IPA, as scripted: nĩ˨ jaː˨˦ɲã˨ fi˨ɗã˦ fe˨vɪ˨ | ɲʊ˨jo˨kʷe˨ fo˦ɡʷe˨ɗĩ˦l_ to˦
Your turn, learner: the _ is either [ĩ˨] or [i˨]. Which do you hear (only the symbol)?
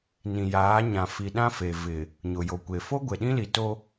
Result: i˨